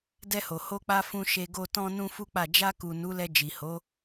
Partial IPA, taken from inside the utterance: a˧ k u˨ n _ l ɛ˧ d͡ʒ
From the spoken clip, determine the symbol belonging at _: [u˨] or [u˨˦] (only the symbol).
u˨˦